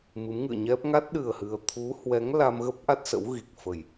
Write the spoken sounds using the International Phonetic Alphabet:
m ɨ˨˦ m ŋ ɨ̰˧˨ ə̯ ɲ ɛ˦˥ p̚ ŋ a˦˥ t̚ ɗ ɨ˨˩ ə̯ h ɨ˧ ə̯ t̪ʰ u˨˦ h w ɛ˨˦ ŋ l a˧ m ɣ ə˦˥ p̚ ʔ a˦˥ t̚ s ə̰˧˥ w ɣ i˨˩ k̚ f ə˨˩ j

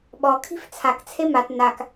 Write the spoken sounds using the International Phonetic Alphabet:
ɓ ɔ kʰ i̤ f t͡sʰ a k t͡sʰ e m a t n a k

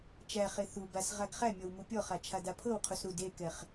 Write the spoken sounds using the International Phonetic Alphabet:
t͡ʃ æ χ e θ u b a s ʁ a ɡ χ æ mʲ ɔ w m u pʲ ɔ χ a t͡ʃʰ a d a pʰ ɤ w qʰ u s ɾ u d e k ɛ χ

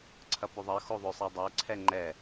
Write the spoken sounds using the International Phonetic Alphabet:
ǀʰ ɐ p ɵ ðˤ ɜ x o ðˤ ɵ sˤ ɛ dˤ ɜ ǀʰ ɛ ŋ͡ǃ ɛ

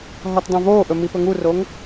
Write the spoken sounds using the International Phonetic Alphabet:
ɦ ɔ t dˤ õ v oː ʔ ɵ m i p ɵ ŋ u r o ŋ

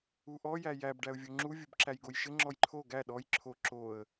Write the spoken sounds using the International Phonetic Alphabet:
u ʔ ɔ j æ j æ b ɖ æ ʊ̯ vʲ o ŋ͡ǁ u vʲ u b ǁ æ j ɡ o j ʃ ɘ ŋ͡ǁ ɔ j ǃʰ o ɡ æ ɗ ɔ j ǁʰ o ǁ o ə̯

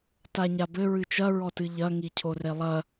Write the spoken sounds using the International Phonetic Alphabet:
t a ɲ a b ɘ ɹ ɨ t͡ʃ ɐ ɹ ɔ t ɨ ʎ ɐ ŋ i cʰ o r e lˠ ɐ

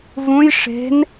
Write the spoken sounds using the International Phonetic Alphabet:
v ũ j ʂ e̤ n

